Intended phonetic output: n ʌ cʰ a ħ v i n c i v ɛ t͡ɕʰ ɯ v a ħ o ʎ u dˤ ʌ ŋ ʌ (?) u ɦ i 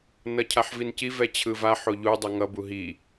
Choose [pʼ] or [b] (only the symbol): b